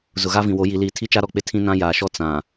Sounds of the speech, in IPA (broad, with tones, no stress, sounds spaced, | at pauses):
z ʊ˨ ɣ a˦ v ĩ˨ w o˨˦ j i˨ l iː˨ tʰ i˦ t͡ʃ a˦ ɾ ɔ˨ k͡p ɪ˦ tʰ ĩ˦ n ã˦ j aː˨ ʃ ɔ˦ t͡s ã˨